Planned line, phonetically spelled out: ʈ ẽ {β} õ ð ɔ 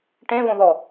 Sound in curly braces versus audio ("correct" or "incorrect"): correct